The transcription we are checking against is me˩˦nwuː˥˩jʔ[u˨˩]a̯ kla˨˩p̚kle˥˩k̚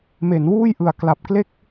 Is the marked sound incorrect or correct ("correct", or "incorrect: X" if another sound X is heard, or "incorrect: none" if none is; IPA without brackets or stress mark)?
incorrect: ɯ˨˩